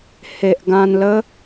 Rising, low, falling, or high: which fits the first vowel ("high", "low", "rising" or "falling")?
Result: low